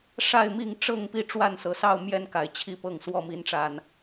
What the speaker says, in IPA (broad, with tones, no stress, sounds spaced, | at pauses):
ʂ a˥˨ ɪ̯ m i˥˨ ŋ ʈ͡ʂ ɤ˥˨ ŋ p i˥˨ ʈ͡ʂ w a˥˨ n s ɤ˨˩ s ɑ˥˨ ʊ̯ m j ɛ˥˨ n k a˨˩ ɪ̯ t͡ɕʰ i˥˨ p ɤ˥˨ ŋ s w ɔ˥˨ m i˨˦ n ʈ͡ʂ a˨˩ n